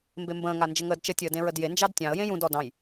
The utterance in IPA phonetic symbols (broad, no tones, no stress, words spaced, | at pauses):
mbembə̃ː ŋand͡ʒəŋəːdt͡ʃə tʲəːdẽɹədje nd͡ʒɑdtʲɑ̃ə̯ jẽjũd ɔdɑ̃j